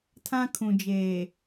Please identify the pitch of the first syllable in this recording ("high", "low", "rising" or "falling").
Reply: high